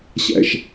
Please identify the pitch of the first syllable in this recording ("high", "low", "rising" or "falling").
low